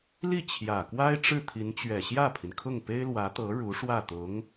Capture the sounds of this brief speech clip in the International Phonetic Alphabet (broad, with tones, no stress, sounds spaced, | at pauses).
l i˥˩ t͡ɕʰ j ä˨˩ k w a˥ ɪ̯ ʈ͡ʂ ɻ̩˥˩ t̪ʰ i˧˥ n t͡ɕ ɥ ɛ˨˩ ɕ j ä˥˩ pʰ i˩ n kʰ ʊ˥˩ ŋ p e˥ ɪ̯ l w ä˧˥ t̪ ɤ˧˥ ɻ u˧˥ ʂ w ä˥˩ t̪ ʊ˧˥ ŋ